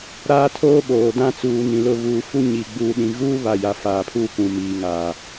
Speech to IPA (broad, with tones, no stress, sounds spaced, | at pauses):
ɾ aː˦ tʰ oː˦ ɓ oː˨ d ã˦ t͡s uː˨ n ĩ˨ l ʊ˦˨ β uː˨ f u˦ ɲ i˨ ɡ͡b uː˨ ɗ ĩ˨ ɣ uː˦ β a˦˨ j a˨ f aː˨ pʰ uː˦ k ũ˨ m iː˨ ŋ aː˨